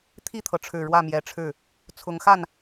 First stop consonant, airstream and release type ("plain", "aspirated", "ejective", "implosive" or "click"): aspirated